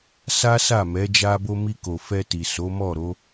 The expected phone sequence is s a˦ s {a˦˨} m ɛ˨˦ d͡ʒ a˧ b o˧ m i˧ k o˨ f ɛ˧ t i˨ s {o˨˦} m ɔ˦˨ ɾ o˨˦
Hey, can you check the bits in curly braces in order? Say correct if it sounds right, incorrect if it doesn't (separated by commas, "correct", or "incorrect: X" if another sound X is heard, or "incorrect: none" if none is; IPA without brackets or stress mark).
correct, correct